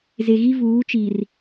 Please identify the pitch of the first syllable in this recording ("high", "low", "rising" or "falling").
low